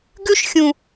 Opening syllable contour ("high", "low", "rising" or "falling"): high